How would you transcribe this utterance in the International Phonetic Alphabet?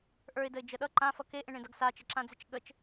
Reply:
ʔ ə˞ ɪ̯ d ə ɪ̯ d͡ʒ ə ɗ ʌ ǃ ã f ʌ k e ʔ ẽ ɳ ẽ d ʌ ɡ s a t͡ʃ ə ǁ ã d͡z e t͡ʃ ɠ ə t͡ʃ

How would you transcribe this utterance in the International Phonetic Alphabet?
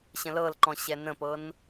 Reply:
ɕ ə̃ l ɤ l ǃ ɔ̃ ɕ ɛ n ə̃ p ɤ n

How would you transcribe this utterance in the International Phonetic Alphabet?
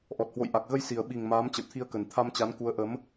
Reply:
ʔ ɔ˨˩ t̚ h w o̰˧˨ j ʔ a˨˩ k̚ ɣ ə˧ j s i˨˩ ə̯ ɓ i˨˩ ŋ m aː˨˦ m t͡ɕ ə̰˧˨ w t̪ʰ i˧ ə̯ k ə˨˩ n t̪ʰ a˧ m t͡ɕ a˨˦ n k u˨˦ ə̯ ʔ ə˨˦ m

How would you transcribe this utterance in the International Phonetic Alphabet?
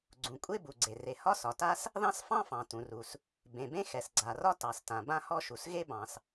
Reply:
ɡ͡ǀ ũ˩ kʷʼ e˥ b u˩ ɡ͡ǀ e˩ r e˩ h ɒ˥ s ɒ˩ t a˥ s | ð ɑ̃˥ s f ɑ̃˥ f ɑ̃˩ t ũ˩ r u˩ s | b ẽ˩ b ẽ˥ x ɛ˩ s ɡ͡ǀ a˩ r ɒ˥ t ɑ˩ s t ã˩ b ã˥ h ɔ˥ ʃ u˩ s ɣ e˥ b ɑ̃˩ s

